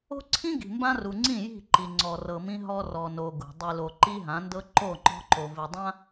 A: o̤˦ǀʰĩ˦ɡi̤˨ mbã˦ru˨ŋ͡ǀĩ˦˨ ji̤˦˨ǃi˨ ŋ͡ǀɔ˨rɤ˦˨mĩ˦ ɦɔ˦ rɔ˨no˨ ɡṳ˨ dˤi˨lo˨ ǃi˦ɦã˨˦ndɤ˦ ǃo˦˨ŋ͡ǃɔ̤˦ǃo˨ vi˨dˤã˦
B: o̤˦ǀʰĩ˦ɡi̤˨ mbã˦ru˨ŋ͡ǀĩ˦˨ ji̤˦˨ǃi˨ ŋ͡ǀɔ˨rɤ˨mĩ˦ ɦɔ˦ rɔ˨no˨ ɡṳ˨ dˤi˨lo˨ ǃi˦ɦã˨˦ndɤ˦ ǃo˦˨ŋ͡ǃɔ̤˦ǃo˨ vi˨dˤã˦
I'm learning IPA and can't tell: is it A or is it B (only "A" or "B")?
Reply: B